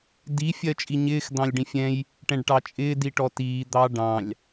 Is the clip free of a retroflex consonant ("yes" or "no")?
no